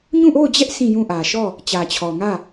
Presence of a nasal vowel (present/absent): present